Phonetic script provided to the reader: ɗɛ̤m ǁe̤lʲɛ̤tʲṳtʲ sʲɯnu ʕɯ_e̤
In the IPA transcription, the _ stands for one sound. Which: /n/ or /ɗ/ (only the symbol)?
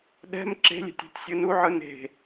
n